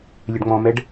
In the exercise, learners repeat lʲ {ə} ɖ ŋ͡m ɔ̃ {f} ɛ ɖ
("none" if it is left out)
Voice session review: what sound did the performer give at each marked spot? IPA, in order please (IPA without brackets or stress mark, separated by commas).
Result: ə, m